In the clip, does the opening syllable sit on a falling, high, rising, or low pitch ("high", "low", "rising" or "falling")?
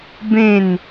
falling